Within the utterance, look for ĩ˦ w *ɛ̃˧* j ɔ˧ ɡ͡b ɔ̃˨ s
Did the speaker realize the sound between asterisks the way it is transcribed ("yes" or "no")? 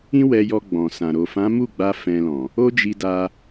no